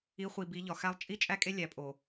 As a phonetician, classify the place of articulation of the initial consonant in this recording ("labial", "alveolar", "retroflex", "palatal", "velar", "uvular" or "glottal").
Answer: uvular